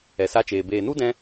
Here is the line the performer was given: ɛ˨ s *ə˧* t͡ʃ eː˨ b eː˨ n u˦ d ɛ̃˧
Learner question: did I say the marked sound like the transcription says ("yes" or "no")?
no